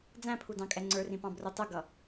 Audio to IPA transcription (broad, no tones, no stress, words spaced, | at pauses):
d͡zæ̃pʰudɑ̃ kʼɛŋ͡ǀə˞rĩpɑ̃ brutˤʊɡʌ